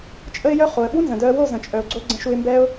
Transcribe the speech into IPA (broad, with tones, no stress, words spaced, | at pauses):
t͡ʃʼə˦ɪ̯jœ˦ χo˨ə̯ɓu˦nzə̃˨dœ˧ə̯ wo˦˨zə̃˨t͡ʃʼœ˨ʊ̯ɡ͡ǀo˧ ɡ͡ǀə̃˧ʃu˧ɪ̯mbɛ˦ʊ̯